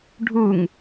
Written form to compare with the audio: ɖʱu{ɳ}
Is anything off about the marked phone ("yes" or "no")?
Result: yes